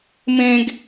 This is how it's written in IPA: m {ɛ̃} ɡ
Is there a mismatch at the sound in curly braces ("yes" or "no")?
yes